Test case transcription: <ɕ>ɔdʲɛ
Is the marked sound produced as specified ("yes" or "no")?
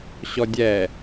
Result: yes